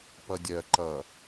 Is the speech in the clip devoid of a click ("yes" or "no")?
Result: no